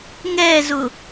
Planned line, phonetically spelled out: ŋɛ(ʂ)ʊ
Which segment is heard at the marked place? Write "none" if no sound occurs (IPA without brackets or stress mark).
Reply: z